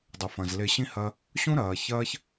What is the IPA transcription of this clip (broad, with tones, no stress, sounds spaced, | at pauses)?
dˤ ɨ˩ f ɐ̃˩ z l e˧ ɕ ĩ˥ h ɐ˧ | ɕ ũ˥ ɾ ɐː˩ ç ɐː˥ ç